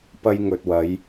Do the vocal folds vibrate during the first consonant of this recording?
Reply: no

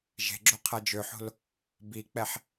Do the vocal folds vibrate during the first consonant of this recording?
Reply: yes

